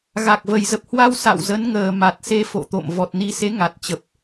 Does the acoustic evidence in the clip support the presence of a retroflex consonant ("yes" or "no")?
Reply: no